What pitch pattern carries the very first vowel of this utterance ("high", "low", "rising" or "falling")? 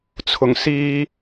low